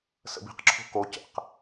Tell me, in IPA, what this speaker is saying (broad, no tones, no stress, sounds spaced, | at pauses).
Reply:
s ə̰ b i̤ q ǁʰ o̤ k o c ə̰ q